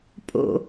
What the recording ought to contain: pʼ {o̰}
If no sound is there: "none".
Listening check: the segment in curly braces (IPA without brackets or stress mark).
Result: o̰